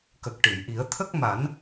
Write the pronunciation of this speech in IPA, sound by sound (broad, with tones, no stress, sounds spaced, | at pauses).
k ə˨˩ k̚ ʈ ɨ˨˩˨ j ʔ i˨˩˦ ə̯ t̪ʰ ə˦˥ k̚ m a˨˩˦ n